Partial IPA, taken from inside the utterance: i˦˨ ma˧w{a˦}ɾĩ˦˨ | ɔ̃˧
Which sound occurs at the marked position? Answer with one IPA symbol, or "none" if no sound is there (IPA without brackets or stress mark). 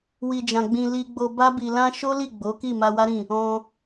a˦